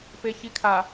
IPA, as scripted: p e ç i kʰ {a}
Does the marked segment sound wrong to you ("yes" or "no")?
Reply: no